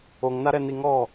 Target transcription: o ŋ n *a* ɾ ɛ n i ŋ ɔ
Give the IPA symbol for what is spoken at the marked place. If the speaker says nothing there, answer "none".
a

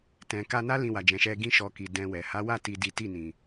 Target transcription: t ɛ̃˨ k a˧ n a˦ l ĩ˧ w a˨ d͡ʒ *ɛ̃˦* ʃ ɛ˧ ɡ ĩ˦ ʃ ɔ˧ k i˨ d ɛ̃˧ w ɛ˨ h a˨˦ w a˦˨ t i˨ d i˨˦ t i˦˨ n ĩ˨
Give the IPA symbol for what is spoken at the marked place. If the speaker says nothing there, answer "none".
ɛ̃˨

